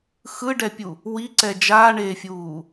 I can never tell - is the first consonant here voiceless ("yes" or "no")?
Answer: yes